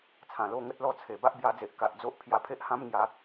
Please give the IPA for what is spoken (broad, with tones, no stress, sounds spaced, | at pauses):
t͡sʰ ã˨˩ l o˥˧ ŋ ə˦ t̚ l ɔ˥˧ t͡sʰ e˨˩ b a˦ ʔ b j a˧ d͡z e˨ ʔ k a˨ ʔ d͡z o˦ ʔ pʰ j a˧ pʰ e˦ ʔ h ã˦ m ŋ j a˨˦